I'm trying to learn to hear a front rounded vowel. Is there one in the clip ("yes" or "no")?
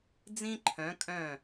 yes